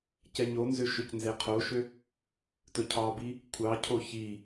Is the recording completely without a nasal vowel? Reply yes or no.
yes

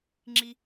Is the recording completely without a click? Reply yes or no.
no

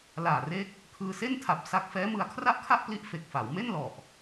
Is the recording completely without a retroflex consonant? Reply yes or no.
yes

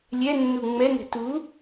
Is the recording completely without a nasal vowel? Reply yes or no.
yes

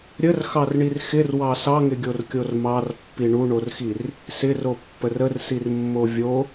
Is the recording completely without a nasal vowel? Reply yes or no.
yes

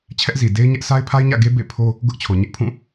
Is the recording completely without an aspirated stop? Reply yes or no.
no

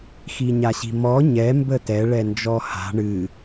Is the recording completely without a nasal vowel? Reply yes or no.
yes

